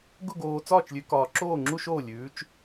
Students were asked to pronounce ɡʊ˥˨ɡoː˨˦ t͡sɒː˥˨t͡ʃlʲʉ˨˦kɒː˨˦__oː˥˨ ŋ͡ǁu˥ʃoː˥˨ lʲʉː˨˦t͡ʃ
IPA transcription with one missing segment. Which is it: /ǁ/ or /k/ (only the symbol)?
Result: ǁ